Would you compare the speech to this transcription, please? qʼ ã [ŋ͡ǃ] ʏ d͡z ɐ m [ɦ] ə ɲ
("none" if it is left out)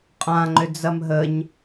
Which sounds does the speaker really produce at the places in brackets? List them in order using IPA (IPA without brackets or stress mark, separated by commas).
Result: ŋ͡ǃ, ɦ